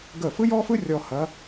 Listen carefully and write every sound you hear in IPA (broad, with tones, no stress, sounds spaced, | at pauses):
ɡ ə˥˩ f ɯ˥ j ɔ˥ f ɯ˥ rʲ ɔ˧ h ɐ˧˥